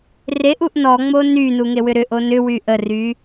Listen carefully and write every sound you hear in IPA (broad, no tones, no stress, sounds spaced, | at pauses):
r e ʔ u ʔ n ɔ ŋ͡m o n y n u ŋ e w ʏ ɾ ʏ ʔ o n ʏ w y ʔ ə r y